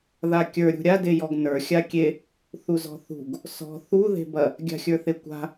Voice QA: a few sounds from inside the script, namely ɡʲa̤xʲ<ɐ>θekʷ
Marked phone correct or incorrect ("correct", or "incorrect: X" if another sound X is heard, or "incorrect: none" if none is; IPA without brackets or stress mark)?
incorrect: ə˞